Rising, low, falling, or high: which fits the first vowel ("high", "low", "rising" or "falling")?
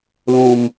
low